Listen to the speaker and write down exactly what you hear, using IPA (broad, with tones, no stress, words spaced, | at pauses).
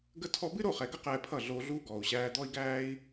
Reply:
ɡə˧tʰɔ˧bɨ˦ ɾo˦˨χɛ˨ɡə˦ qɛː˧pʰʌ˦˨ ɮoː˧ɮuː˦ ɡɔː˨u̯ɕæː˧d̪ɔ˦i̯ɡæː˦i̯